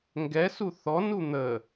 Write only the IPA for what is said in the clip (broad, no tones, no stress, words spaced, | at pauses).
ŋɡɛsu θɔnu n̪ə